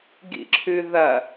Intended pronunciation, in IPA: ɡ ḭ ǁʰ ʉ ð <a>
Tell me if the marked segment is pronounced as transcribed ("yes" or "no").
no